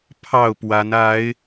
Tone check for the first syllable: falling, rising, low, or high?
falling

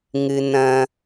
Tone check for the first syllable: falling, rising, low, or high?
low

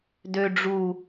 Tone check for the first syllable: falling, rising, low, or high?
low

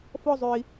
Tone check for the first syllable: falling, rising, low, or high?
high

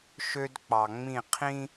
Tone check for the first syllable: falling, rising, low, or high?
high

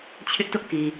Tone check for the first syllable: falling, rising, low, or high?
high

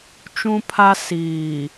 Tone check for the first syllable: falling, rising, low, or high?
high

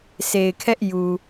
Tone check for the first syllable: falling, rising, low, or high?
low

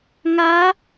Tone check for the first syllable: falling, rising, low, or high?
rising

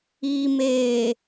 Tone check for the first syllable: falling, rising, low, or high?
low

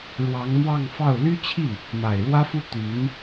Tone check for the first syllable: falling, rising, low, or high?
rising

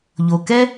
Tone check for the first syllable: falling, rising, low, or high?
low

